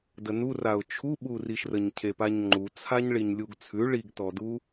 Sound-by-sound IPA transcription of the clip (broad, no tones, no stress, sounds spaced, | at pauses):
d ə n u r a ʊ̯ t͡ʃʰ u ɓ u r i ʃ r ə ɲ cʰ e p a ɲ ŋ͡ǃ u t͡sʰ a ɲ ɭ i ɲ lʲ u ɡ t͡sʰ ʉ ɭ i ɡ t ɔ d u